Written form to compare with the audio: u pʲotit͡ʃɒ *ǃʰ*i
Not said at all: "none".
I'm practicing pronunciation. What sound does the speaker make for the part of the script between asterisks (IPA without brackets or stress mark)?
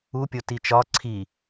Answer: ǀʰ